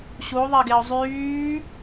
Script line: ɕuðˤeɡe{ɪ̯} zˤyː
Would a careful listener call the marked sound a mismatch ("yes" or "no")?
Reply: yes